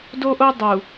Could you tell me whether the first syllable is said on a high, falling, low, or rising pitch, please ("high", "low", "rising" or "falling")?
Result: high